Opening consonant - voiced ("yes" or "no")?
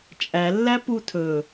no